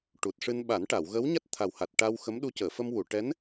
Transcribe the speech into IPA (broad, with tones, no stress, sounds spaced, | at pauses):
ʈ u˨˩ t̚ ʂ ɨ˧ n ɓ a˨˩˦ n ʈ a˨˩˨ w ɣ ə˧˥ w ɲ a˦˥ t̚ t̪ʰ a˨˩ w h a˨˩ t̚ ʈ a˧ w x ə˧˥ m ɗ u˧˥ c əː˨˩˨ f ə˧ m w u˨˩˨ ʈ ɛ˧˥ n